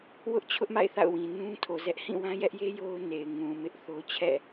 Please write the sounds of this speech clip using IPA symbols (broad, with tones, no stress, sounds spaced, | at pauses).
w ʊ˦ ʔ t͡ɕʰ ʊ˦ ʔ m a̰˦˨ ɪ̯ θ a̰˦˨ ʊ̯ w ĩ˨ n ũ˦ tʰ o˨ z ɛ˦ ʔ h ĩ˦˨ w ã˦ j ɛ˦ ʔ j e˦ j o˦ ʊ̯ n e˨ ɪ̯ ŋ ũ˨ m ɪ˦ ʔ θ o˦ t͡ɕʰ ɛ̰˦˨